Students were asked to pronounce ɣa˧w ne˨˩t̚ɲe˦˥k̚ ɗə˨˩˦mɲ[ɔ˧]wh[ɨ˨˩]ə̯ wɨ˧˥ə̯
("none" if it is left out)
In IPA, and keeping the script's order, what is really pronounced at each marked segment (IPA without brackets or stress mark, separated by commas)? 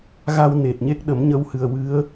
ə˧, ɨ˨˩